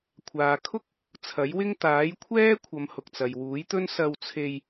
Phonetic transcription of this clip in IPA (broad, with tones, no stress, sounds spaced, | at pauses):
kʷʰ aː˨ kʰ ʊ˥ k̚ | t͡sʰ ɐ˨˥ j w ɪ˥ ŋ t̪ aː˨˥ j kʷʰ ɛː˥ kʷʰ ɐ˨˧ m h ʊ˨ k̚ t͡s ɐ˨ j w uː˨˥ j t̪ ɵ˥ n s ɐ˧ w t͡sʰ e˧ j